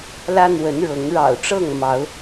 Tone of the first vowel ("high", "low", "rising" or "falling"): high